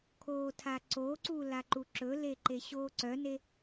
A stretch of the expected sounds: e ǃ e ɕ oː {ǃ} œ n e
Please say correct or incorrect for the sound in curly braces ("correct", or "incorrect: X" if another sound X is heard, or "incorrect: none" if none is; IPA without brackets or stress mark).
incorrect: ǀ